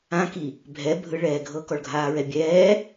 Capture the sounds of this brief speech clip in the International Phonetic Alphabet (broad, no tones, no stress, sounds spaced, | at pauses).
ã k i | bʱ ɛ bʱ ɯ ɭ ɛː ɡʱ ɤ k ɔ ɭ ɡʱ aː ɹ ɛ bʲ ɛː